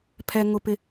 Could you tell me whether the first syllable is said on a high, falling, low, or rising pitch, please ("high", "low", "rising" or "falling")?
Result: low